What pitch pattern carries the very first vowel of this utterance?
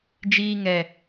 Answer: high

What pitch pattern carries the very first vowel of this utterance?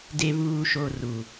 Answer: low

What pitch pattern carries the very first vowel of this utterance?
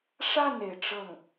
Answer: falling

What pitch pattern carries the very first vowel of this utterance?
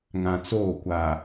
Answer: low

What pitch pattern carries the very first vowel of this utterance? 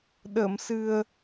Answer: low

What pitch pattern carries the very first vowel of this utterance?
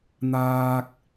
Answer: high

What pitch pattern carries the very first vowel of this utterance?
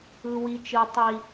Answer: high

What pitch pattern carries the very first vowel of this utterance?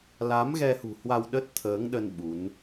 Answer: rising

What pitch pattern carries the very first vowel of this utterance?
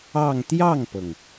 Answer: falling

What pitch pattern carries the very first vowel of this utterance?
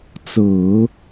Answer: low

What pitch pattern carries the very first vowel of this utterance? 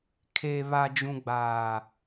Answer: low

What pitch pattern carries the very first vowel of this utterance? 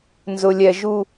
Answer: low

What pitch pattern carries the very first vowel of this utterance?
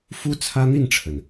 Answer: high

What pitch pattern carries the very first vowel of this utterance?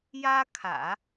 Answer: high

